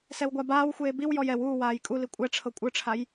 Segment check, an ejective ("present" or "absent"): present